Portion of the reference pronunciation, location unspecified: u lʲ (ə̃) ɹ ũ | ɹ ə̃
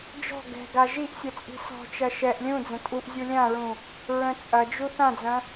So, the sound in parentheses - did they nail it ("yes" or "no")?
no